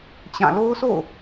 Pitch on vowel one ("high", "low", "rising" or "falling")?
falling